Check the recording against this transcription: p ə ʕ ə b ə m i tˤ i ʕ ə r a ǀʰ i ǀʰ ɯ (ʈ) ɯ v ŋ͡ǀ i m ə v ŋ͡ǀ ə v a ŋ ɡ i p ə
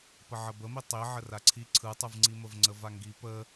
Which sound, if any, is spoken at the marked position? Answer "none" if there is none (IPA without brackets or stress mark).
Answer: tˤ